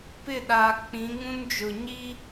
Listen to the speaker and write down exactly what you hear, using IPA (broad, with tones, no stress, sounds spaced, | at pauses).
p ɪ˦˨ ɗ aː˨ k͡p ĩ˨˦ ŋ ũ˦ n d͡ʒ ʊ˨ ɲ iː˦